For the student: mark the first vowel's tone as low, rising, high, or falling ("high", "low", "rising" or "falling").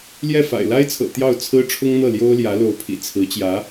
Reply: falling